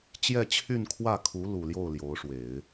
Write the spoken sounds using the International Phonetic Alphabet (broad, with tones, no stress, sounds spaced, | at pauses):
t͡ɕ j ɛ˥˧ t͡ɕʰ y˥˧ n kʰ w ä˥˩ kʰ u˧˥ l u˨˩ l j o˥˩ ʊ̯ l j o˧˥ ʊ̯ ʂ w e˨˩˦ ɪ̯